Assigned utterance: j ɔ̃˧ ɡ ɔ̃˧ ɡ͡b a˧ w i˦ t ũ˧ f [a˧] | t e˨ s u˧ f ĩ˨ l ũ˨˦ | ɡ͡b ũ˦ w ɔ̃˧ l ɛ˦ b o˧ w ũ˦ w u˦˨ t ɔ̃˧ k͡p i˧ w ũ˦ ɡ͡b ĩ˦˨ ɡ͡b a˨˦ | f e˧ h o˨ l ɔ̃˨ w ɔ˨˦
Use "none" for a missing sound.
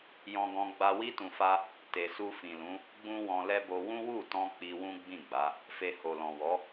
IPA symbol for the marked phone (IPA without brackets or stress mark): a˦